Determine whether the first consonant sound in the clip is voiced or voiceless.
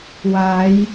voiced